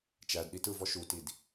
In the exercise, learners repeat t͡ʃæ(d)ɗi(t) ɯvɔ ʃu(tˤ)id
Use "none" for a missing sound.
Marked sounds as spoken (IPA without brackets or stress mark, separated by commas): d, t, t